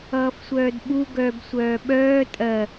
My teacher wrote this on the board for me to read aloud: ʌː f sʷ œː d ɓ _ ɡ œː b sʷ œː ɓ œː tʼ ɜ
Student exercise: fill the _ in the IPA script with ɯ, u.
u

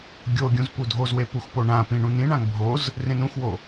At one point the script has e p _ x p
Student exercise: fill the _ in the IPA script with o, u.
u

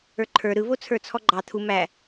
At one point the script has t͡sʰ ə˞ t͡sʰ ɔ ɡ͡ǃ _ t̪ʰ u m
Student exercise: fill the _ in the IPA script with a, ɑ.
ɑ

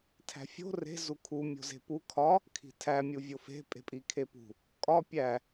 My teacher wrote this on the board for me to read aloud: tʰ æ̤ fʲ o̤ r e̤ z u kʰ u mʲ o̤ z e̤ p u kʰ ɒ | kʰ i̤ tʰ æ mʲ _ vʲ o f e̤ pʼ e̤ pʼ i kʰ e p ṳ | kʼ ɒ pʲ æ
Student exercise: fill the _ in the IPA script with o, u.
u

